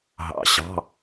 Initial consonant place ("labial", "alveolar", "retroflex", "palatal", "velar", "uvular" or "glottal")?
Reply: glottal